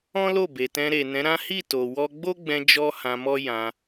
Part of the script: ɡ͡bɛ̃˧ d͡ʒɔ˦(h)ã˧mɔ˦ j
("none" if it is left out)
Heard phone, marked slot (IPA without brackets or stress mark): h